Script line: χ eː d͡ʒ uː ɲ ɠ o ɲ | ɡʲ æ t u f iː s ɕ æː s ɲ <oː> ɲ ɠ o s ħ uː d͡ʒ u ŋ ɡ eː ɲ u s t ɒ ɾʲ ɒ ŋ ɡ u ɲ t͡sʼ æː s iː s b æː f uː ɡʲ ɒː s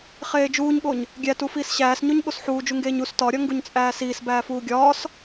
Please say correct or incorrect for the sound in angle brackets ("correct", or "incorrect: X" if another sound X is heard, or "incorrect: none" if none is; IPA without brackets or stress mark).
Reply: incorrect: o